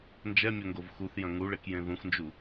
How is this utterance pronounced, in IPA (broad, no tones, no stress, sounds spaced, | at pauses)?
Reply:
n d͡ʒ ɛ mʲ o ŋ ɡ o v x u θ j ɐ̃ ŋ u ɭ e k j ẽ ð ũ x n d͡ʒ u